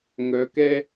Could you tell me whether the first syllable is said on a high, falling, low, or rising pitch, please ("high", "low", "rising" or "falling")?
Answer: rising